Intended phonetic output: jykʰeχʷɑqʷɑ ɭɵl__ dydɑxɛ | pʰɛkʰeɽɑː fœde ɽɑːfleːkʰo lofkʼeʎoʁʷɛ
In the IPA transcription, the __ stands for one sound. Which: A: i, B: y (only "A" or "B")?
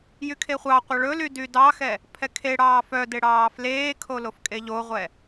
B